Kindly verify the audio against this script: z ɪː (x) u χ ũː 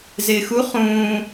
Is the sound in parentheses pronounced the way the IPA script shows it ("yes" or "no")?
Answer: yes